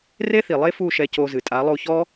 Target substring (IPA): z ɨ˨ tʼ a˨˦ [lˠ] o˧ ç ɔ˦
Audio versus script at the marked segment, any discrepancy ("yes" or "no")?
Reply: no